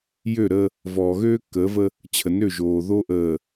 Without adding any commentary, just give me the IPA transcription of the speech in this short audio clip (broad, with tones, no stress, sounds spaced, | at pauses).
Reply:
j ø˦˨ ɾ əː˦ | v ɔː˨ ɣ øː˦ kː əː˨˦ v ə˦ | t͡ɕʰ ə˨ n ø˦˨ ʒ oː˨ ð o˦ ʔ əː˨